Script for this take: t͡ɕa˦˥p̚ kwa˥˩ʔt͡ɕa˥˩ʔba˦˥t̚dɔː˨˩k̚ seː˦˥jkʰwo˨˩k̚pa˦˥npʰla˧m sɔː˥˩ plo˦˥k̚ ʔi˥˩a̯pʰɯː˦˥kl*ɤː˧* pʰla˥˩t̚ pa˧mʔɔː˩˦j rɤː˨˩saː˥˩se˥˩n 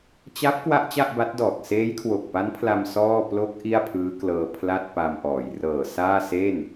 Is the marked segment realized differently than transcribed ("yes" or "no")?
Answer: no